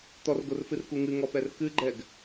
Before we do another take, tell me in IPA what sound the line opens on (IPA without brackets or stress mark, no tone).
t̪